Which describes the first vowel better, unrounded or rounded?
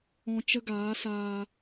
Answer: rounded